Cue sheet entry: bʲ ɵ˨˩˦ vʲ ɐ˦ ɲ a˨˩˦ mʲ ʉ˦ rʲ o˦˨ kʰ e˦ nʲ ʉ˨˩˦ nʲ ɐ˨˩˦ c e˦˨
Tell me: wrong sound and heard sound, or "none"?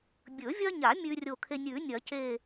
none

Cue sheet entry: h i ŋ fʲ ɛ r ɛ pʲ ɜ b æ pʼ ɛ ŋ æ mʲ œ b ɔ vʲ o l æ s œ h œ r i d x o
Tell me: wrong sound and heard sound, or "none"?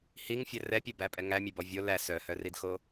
none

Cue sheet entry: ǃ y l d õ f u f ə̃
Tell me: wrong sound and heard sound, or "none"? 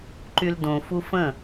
none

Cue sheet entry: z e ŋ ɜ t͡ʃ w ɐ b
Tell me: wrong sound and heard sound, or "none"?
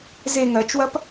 b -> p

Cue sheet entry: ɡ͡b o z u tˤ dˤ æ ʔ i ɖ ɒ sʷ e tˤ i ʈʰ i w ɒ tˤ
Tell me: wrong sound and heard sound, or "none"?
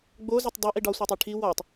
none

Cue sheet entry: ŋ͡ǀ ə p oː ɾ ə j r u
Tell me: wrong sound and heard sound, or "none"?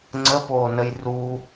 ɾ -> n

